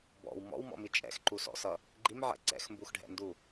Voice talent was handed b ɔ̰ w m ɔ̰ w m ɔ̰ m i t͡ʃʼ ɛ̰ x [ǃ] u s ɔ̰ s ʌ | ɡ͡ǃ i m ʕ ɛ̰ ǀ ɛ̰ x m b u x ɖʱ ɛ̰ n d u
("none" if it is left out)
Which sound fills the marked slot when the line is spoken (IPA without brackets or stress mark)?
ǃ